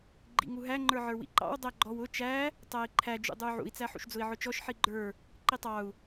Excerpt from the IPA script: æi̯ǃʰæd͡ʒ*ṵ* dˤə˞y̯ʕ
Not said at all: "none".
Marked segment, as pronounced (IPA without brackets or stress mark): ṵ